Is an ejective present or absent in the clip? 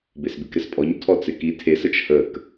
present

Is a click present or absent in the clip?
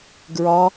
absent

